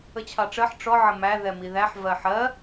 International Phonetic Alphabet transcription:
ə t͡ɕʰ ɑ ʈ͡ʂ ɜ ħ ʈ͡ʂ ɔ ʕ ə m æ ð ɛ m i ð æ ħ v ɜ ħ ɜ

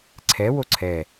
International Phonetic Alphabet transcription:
ǀʰ ɛ w o ǀʰ ɛ

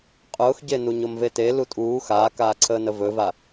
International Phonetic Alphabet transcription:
qʼ ʊː x ɟ e n u ɲ o m v e t e l u tʼ uː x aː k aː ǀʰ əː n ə v ɵ v a

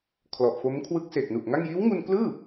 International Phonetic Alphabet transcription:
kʰ l ɔ˨˩ ʔ f o˦˥ m kʰ w ɯ˦˥ k̚ s eː˨˩ k̚ n u˨˩ ʔ ŋ a˥˩ ŋ j iː˦˥ w ŋ u˧ n k l ɯː˥˩

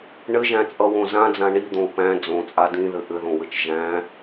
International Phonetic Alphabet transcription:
ɳ ɘ ʒ æ̃ t͡sʼ ʌ w õ z ã d͡z ã ɳ i d̪ õ u̯ p æ̃ d͡z õ t͡sʼ a d ĩ ð ɘ ʔ ɘ ð õ w ɘ t͡ʃ ʒ æ̃

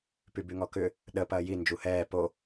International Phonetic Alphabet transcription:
p y b y ŋ ɔ k ʏ | ɗ ə p ɐː j i n d͡ʒ u h ɛː p o

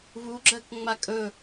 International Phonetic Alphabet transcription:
β u ɡ͡ǁ ɜ k ŋ͡m a kʼ ɵ

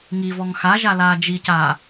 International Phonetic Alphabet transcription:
ŋ i v ɔ ŋ x a ʒ a l aː d͡ʒ i c aː

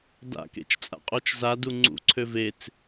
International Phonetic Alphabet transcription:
d a̰ k ḛ t͡ʃ t͡sʼ a̰ qʼ o t͡ʃ z a d u ŋ͡ǀ ṵ ǀʰ ø v e t͡s

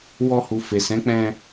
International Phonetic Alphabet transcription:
w ɔ˧ h u˨ f e˨ s ɛ̃˨˦ k͡p ɛ̃˧

